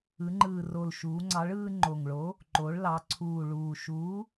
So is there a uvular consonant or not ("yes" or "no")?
no